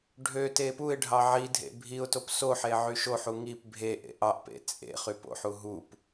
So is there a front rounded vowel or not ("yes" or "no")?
yes